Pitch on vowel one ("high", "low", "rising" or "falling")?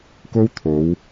high